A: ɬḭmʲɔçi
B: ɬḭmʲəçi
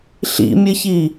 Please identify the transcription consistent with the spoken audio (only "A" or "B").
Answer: B